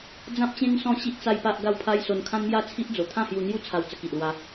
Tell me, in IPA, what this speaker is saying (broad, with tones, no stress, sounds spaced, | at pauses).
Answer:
d͡z ã˦ p̚ t͡ɕ ẽ˦ ŋ s ɔ̃˥˧ ɕ i˦ ʔ t͡s a˦ j p a˦ ʔ ɡ a˥˧ w pʰ a˦ j s o˧ n kʰ ã˦ n m j a˥˧ t͡sʰ i˦ ʔ d͡z o˨˩ t̪ʰ ã˥˧ h j u˧ n̪ j u˦ t͡sʰ a˧ w t͡s ə˧ k i˨ ʔ l w a˧